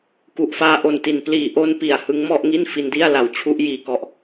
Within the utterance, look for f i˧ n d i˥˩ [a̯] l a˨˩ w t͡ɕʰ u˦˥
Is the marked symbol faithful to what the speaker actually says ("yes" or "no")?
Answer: yes